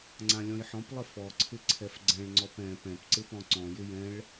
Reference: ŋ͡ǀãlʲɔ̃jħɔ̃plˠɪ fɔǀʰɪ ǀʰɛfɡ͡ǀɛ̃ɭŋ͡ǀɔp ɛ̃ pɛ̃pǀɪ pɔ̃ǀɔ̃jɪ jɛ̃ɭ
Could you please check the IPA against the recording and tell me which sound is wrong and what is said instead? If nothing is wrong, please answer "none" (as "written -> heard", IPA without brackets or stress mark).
none